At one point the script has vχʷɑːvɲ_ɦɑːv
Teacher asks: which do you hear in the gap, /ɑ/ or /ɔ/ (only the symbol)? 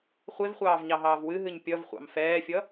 ɑ